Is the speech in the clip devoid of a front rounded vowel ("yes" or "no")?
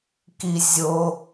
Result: yes